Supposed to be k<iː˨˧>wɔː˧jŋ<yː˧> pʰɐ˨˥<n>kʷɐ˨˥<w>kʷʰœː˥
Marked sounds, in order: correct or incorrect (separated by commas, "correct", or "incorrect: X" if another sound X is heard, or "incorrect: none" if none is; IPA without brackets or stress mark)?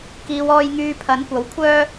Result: correct, correct, correct, correct